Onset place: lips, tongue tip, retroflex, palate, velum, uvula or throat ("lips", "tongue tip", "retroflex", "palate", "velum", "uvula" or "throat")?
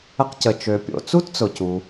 uvula